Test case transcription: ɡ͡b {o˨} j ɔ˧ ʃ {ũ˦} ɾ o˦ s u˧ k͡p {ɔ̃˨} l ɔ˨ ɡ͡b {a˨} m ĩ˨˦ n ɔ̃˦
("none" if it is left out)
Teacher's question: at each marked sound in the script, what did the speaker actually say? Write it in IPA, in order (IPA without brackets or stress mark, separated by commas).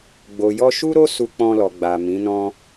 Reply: o˨, u˦, ɔ̃˧, a˨